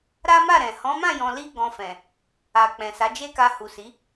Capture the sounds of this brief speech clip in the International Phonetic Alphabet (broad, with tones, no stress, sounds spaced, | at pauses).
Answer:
ɾ a˦ m a˦˨ ɾ ɛ̃˨ h ɔ̃˨˦ m ã˦˨ j ɔ̃˨ l i˧ ɡ ɔ̃˨ f ɛ̃˨ | a˨ k͡p ɛ̃˨ s a˨˦ d͡ʒ e˦ k a˧ h u˨ s i˨˦